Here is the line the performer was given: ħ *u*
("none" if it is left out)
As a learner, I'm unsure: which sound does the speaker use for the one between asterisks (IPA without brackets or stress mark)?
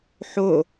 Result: o